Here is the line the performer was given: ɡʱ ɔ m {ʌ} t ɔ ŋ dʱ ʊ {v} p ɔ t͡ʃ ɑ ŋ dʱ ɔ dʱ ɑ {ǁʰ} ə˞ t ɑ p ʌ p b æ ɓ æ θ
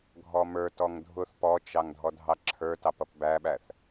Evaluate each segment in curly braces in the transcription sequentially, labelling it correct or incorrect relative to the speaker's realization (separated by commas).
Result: incorrect, incorrect, correct